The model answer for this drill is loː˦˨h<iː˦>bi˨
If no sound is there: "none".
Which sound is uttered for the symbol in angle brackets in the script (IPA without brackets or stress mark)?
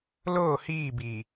iː˦˨